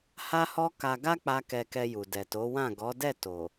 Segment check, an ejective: absent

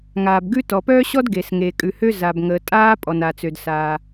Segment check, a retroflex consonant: absent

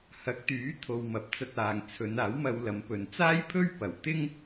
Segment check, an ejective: absent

